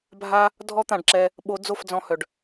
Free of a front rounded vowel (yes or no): no